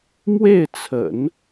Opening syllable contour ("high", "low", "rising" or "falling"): falling